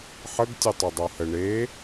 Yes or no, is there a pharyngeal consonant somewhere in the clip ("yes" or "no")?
yes